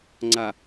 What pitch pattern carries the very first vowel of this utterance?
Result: low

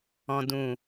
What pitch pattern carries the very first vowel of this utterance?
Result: low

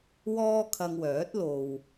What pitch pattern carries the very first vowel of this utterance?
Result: high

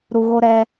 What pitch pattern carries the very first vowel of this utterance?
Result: low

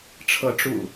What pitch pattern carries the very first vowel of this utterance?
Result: rising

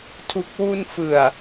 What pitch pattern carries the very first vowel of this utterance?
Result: low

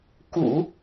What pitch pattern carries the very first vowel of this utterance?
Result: low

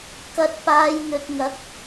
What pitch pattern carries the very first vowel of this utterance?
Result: low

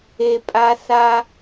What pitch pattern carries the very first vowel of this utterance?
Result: low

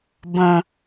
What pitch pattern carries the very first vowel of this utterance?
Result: low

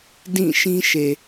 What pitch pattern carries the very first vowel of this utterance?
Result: falling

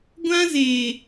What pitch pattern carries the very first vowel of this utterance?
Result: high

